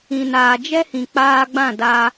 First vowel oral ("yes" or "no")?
no